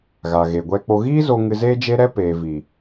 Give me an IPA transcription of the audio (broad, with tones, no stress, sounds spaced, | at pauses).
ɣ a˨ ɣ e˨ ɡʷ ɛ˧ k͡p o˧ ɣ iː˦ z o˧ ŋ ɨ˧ z eː˦ d͡ʒ e˦ ɾ ɛ˦ p e˨ v i˨